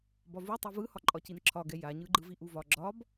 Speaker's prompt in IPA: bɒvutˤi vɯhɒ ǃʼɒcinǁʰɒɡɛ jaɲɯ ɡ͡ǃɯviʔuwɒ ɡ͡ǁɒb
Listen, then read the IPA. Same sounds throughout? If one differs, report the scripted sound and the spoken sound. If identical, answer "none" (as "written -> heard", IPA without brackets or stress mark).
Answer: w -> v